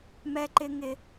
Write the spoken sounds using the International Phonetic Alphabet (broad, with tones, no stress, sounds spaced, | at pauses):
m ɛ˥ ǃ ɪ˥ ŋ ɪ˥